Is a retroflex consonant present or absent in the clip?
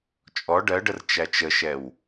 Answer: present